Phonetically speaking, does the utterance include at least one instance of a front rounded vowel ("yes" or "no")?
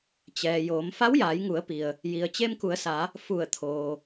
no